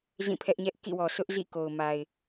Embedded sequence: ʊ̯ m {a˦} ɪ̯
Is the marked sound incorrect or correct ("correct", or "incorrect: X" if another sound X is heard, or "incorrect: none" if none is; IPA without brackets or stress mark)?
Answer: incorrect: a˨